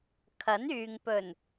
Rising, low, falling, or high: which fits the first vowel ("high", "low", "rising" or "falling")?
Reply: rising